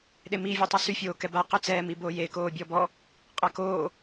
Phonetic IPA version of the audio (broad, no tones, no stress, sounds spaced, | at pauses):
ɗ e m i vʲ u tˤ o s y fʲ oː k ɛ b a q ø t͡s ɛː m i b oː j e k oː bʲ ɔ b ɔ | qʼ a k oː